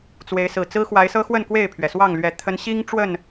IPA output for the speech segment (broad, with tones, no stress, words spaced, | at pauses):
t͡swe˨˦ɪ̯sɹ̩˨˩ t͡sɹ̩˦xwa˨˦ɪ̯sɤ˦xwə˥˨n kwe˥˨ɪ̯pʰɥɛ˩swɑ˥˨ŋ lɥɛ˨˩ t̪ʰə˨˦nɕi˦ŋ ʈ͡ʂwə˥˨n